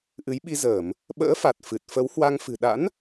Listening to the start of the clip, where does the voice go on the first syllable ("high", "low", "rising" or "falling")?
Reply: rising